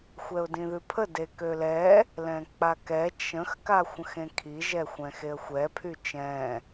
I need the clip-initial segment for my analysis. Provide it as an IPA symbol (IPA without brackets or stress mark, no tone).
xʷ